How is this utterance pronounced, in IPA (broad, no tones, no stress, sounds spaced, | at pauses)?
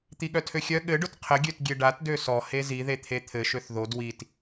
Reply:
t̪ i ɠ œ tʰ ø xʲ œ ɠ ɘ ɖ ʊ t qʰ ə ɡʲ ø t ɡʲ e ɖ a t d ø s ɔ h e z i ð e t̪ʰ e t̪ʰ ɘ ʃ ø θ ð o d w i t